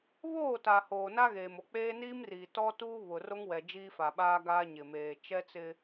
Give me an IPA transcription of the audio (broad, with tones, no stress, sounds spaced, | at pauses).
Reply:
β oː˦˨ t a˨ h oː˨ n a˦ ɣ eː˨ m o˨ k͡p eː˦ n iː˦ m r iː˨ t ɔ˦ t uː˦ β ʊ˨ r o˦ ŋ w ɛ˨ d͡ʒ iː˦ f a˨ ɓ aː˦ ɡ aː˦ ɲ ɪ˨ m eː˨ t͡ʃ ɛ˦ t͡s ɪ˦